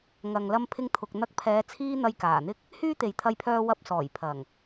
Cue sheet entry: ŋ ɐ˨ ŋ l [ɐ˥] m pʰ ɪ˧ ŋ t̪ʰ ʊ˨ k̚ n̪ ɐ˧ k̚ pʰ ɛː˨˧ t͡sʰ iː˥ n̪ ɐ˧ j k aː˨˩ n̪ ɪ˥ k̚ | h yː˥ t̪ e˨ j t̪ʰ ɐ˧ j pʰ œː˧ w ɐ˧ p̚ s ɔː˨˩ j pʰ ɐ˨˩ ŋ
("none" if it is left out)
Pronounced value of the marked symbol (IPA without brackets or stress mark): ɐ˧